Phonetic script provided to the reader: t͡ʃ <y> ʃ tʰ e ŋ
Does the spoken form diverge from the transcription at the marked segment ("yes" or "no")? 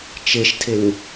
yes